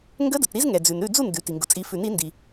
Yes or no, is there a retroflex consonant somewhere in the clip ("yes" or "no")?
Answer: no